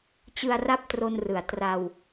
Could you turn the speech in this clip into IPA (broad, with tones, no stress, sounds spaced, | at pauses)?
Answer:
t͡ɕ ɯ˧ a̯ r a˦˥ p̚ t r o˧ n r ɯ˨˩ a̯ t r a˧ w